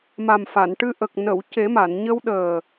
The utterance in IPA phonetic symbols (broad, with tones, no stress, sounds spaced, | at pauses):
m a˨˩ m f a˨˩˨ n ʈ ɨ˧ ʔ ə˨˩ k̚ n ə˨˩˨ w c e˨˩˦ m a˨˩˨ n ɲ ə˧ w ɗ əː˨˩